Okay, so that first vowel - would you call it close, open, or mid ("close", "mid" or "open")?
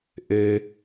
mid